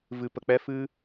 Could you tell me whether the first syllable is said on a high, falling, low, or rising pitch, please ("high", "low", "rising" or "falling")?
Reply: low